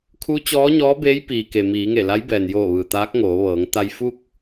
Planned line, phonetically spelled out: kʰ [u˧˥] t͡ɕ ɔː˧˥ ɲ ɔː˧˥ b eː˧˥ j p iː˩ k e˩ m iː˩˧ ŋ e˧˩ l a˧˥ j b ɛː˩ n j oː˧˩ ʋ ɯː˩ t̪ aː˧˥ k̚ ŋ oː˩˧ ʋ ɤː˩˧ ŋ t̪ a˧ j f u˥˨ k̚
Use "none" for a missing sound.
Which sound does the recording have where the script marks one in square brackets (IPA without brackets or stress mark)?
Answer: u˧˥